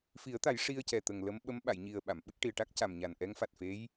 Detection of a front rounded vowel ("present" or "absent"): absent